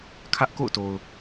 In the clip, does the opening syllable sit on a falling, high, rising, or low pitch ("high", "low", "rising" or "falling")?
high